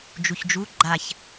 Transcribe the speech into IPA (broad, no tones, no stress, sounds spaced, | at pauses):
d͡ʒ u ç d͡ʒ u ɡ͡ǃ a ç